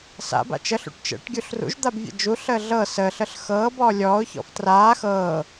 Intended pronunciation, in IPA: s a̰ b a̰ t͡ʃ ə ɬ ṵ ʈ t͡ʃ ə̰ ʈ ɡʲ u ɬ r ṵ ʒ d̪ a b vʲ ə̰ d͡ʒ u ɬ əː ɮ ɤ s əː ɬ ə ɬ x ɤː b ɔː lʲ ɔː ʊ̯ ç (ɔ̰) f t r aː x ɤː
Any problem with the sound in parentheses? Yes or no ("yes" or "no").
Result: no